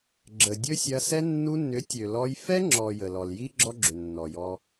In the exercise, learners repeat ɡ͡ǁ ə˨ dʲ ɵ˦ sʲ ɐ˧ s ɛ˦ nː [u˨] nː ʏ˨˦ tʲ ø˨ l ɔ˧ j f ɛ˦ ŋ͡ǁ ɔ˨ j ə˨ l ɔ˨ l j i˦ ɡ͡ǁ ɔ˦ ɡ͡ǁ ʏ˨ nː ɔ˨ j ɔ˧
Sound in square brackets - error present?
yes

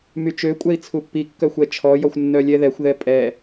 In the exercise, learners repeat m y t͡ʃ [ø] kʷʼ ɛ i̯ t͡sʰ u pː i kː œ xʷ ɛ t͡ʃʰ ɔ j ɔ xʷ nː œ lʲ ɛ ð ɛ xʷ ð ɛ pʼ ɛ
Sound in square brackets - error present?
no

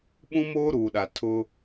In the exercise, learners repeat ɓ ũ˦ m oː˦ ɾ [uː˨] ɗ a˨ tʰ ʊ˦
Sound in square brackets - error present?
no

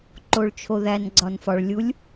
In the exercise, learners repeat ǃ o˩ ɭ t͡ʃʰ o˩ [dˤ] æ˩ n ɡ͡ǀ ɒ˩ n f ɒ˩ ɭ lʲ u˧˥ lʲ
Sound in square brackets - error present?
yes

